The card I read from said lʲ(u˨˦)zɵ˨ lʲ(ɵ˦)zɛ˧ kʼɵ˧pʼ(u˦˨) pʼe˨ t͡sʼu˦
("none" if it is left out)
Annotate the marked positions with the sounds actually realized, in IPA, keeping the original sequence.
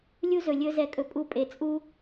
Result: u˦, ɵ˦, u˦˨

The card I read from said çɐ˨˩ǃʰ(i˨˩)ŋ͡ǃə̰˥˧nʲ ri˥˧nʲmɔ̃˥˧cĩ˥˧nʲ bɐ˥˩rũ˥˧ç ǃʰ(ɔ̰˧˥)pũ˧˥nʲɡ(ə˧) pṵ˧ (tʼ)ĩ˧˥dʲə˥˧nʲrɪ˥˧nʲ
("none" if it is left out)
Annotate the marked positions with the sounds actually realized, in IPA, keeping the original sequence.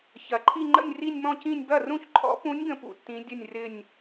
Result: i˥˧, ɔ̰˧˥, ə̃˧, tː

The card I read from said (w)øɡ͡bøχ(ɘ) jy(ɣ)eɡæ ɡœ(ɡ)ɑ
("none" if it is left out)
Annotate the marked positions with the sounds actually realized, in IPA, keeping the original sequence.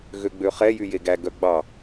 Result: ɣ, ɛ, j, ɡ͡b

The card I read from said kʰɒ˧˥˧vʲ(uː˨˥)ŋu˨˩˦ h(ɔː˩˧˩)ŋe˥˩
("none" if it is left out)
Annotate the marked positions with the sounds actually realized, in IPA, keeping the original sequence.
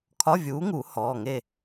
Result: uː˨˥, ɔː˩˧˩

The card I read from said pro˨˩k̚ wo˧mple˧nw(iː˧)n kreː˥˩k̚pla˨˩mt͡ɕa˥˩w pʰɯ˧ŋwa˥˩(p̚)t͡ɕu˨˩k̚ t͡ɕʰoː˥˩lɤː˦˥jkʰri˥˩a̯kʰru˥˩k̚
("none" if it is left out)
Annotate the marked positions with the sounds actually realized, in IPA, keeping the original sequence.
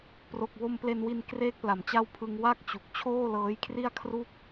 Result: i˧, k̚

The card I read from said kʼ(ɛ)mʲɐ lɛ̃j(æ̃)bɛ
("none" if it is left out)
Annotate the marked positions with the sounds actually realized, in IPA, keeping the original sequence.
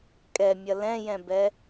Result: ɛ, ɛ̃

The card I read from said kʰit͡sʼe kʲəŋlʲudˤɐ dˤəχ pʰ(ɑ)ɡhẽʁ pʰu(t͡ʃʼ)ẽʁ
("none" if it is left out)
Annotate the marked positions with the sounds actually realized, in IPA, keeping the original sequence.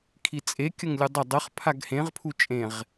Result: a, t͡ʃʼ

